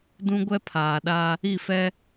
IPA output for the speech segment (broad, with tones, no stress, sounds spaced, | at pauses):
d ũ˦ ɡʷ ɛ˦ pʰ aː˨ ɗ a˦ | i˦˨ f ɛ˦